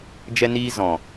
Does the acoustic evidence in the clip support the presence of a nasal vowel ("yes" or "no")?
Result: yes